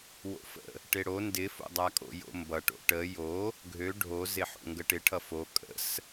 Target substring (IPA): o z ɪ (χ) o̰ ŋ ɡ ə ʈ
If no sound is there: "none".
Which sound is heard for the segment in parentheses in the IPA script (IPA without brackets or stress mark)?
ħ